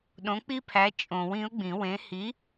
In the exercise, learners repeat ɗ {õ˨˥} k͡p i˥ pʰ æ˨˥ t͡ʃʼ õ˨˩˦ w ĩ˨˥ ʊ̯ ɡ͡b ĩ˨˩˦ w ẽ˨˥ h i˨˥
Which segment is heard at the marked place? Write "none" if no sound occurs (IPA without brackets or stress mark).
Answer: õ˨˥